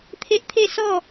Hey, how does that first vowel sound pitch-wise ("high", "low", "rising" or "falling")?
high